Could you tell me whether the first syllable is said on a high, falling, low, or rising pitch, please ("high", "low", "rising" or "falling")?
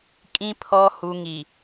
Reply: low